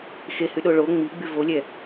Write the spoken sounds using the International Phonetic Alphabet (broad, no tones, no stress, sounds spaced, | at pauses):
x e h y ɗ o ɭ o ŋ͡m i ɡ͡b y v o lʲ ɛ